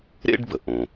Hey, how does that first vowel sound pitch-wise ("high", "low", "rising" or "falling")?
high